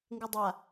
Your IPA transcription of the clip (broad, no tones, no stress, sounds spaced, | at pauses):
ŋ ɡ ɯ dˤ a